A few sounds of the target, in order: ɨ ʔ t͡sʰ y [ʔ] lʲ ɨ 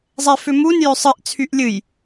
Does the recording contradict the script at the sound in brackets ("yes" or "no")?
no